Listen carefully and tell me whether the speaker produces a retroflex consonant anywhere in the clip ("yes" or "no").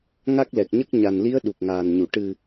yes